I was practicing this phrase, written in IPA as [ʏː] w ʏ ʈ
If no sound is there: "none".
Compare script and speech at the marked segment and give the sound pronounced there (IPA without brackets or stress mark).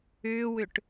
ʏː